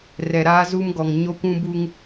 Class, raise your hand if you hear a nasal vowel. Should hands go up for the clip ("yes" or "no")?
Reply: yes